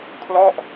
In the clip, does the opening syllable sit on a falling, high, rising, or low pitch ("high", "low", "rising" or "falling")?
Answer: falling